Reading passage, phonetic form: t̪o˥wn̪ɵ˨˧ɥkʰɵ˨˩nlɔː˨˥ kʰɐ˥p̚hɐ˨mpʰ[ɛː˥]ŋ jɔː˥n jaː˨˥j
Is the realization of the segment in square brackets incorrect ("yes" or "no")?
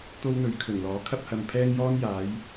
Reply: no